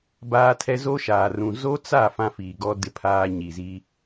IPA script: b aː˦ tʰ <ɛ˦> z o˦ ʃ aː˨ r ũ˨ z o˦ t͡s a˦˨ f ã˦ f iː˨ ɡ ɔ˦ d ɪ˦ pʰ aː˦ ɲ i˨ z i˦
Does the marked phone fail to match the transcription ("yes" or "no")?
no